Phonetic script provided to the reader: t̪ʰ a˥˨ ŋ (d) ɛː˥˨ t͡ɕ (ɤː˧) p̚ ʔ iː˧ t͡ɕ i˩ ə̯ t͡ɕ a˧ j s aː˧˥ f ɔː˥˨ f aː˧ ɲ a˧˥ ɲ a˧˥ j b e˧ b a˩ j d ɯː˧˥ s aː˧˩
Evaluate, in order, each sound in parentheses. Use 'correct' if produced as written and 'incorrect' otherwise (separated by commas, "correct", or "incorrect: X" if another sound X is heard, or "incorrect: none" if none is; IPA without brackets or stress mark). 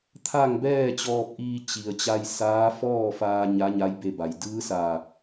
incorrect: b, incorrect: ɔː˧